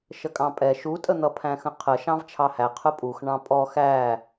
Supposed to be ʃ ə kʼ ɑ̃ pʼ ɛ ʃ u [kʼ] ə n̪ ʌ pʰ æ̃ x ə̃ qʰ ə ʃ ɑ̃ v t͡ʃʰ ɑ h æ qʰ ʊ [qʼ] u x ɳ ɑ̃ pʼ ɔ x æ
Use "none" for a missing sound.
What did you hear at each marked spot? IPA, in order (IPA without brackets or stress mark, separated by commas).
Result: tʼ, pʼ